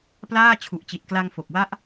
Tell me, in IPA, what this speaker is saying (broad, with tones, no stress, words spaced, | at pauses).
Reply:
plaː˥˩ t͡ɕʰu˨˩ʔt͡ɕi˨˩t̚kla˧ŋ fo˨˩k̚wa˦˥ʔ